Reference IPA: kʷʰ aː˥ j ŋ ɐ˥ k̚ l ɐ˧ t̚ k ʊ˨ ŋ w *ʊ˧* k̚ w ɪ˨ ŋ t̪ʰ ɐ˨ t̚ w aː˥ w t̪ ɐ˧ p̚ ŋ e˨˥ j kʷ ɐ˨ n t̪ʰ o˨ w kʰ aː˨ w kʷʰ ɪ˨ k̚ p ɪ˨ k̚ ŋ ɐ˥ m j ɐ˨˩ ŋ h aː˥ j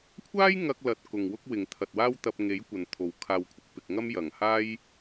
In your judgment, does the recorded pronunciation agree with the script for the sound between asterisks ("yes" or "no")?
no